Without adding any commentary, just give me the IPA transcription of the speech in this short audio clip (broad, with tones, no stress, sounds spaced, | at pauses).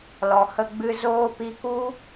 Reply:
l ɔ˨ h ə˧ ɡ͡b ɨ˧ z oː˧ p i˧ k u˦